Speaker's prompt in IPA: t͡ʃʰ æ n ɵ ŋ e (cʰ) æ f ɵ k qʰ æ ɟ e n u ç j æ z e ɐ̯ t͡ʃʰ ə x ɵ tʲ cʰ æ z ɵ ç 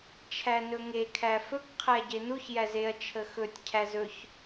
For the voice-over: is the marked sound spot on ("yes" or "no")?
no